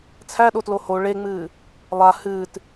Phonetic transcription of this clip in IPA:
t͡sʰ æ ɗ o t l o h o ɭ e ŋ͡m ɨː | lˠ a h ɨː t

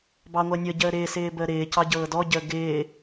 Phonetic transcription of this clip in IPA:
b ɑ ŋʷ əː nʲ ɤ ɟ əː ɾ ɪː s ɪː b əː ɾ ɪː c ɑ ɟ ɤː d ɔ ɟ əː ɡ ɪː

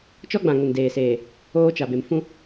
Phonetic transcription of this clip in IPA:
t͡ʃ ɔ˦ ɡ͡b ã˨ ŋ ʊ˨ n d eː˨ s eː˨ | oː˦ t͡ʃ a˨ b e˨ m f ũ˦

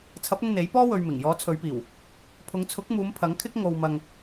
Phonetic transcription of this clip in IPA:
t͡sʰ ɐ˨˥ p̚ ʊ˧ ŋ n̪ e˨˥ j p ɔː˥ w ɵ˧ ɥ m ɪ˨˩ ŋ j ɔː˨˥ t͡sʰ ɵ˨˧ ɥ p iː˨˩ w | pʰ ʊ˨˧ ŋ t͡sʰ ʊ˨˥ k̚ m uː˨˧ m pʰ ɐ˨˥ ŋ kʰ ɪ˥ k̚ ŋ o˨ w m ɐ˨ ŋ

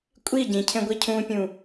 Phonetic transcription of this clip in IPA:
kʷʼ i ɟ ĩ cʰ ẽ ɡʷ i cʰ ũ pʲ ũ

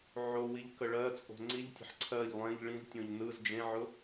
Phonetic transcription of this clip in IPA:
ʕ o w i ʎ k ə ɭ ɜ t͡sʼ o̤ ŋ͡ǀ i ʎ tʲ ə̤ ħ ǀʰ ɜ ʎ lˠ ẽ ʎ ɭ ĩ z tʲ õ ʎ n ɯ z d͡ʒ ẽ ʕ ʊ

